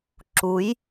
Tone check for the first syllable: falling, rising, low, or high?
rising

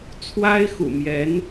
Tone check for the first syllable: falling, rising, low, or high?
high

